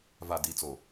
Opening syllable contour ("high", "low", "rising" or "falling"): low